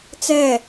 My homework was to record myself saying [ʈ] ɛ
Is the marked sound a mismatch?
yes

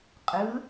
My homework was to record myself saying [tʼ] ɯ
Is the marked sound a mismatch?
yes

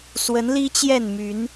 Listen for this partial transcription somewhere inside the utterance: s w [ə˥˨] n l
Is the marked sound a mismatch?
yes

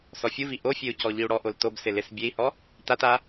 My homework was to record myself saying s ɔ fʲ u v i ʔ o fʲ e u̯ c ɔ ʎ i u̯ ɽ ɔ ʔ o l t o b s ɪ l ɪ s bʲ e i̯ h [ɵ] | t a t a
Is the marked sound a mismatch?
yes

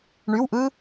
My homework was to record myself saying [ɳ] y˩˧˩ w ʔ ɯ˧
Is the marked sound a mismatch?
no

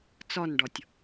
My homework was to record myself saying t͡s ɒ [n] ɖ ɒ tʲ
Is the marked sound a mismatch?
no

